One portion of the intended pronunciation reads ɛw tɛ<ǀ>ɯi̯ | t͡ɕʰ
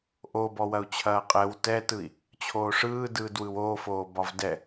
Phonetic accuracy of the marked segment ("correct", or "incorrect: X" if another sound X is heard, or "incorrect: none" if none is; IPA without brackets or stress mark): incorrect: t